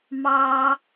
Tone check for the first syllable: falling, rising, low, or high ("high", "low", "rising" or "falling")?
low